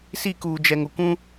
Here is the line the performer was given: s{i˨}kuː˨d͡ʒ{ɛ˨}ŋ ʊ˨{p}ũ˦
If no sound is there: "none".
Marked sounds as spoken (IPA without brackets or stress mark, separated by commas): i˦˨, ɛ˨, kʷ